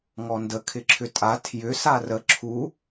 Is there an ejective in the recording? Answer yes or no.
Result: yes